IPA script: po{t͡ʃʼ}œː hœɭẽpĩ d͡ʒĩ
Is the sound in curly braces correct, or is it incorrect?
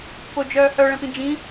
incorrect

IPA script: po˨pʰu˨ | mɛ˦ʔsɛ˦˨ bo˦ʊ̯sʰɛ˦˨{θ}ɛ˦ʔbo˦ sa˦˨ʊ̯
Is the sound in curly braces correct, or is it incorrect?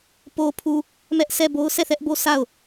correct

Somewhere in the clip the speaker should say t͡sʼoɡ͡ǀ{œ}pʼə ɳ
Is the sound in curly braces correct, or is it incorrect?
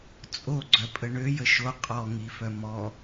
correct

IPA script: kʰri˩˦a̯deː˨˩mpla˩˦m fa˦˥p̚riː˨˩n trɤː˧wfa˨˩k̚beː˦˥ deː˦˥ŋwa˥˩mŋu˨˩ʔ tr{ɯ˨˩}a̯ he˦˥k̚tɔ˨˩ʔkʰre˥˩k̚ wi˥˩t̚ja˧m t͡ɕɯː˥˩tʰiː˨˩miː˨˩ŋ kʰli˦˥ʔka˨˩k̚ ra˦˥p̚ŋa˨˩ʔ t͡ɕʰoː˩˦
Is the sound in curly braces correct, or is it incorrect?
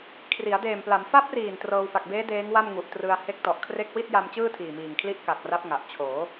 incorrect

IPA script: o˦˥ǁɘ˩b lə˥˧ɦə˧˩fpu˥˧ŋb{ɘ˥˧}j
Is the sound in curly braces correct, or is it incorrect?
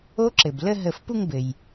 incorrect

